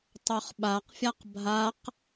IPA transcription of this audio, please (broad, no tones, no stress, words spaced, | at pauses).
tˤoχɓaqfʲaq bʱaq